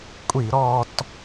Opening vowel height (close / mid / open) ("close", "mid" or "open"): close